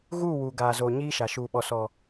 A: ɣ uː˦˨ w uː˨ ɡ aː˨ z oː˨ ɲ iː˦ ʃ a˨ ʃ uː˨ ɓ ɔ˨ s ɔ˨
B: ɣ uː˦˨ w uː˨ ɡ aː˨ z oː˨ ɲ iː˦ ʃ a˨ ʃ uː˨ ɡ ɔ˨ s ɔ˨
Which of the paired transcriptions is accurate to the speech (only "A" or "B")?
A